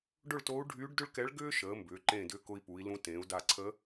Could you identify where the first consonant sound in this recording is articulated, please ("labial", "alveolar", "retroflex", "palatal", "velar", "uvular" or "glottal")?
retroflex